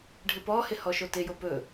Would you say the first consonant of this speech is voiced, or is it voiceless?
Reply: voiced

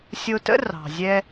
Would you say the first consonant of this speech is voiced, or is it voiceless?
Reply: voiceless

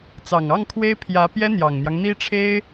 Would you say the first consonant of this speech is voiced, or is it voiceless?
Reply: voiceless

